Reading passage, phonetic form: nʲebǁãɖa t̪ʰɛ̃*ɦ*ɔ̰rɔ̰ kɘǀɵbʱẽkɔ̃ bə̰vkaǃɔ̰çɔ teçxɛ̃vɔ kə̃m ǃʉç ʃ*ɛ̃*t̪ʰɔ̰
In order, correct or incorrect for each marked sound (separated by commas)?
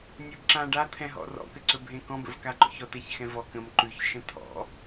correct, incorrect